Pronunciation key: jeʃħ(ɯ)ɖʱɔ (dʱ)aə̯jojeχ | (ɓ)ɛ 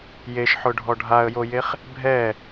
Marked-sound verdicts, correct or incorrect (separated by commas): incorrect, incorrect, incorrect